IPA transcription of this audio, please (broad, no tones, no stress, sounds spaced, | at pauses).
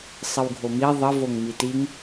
sˤ ə w ɡʱ o m i ðˤ ə v o ŋ m i t i ŋ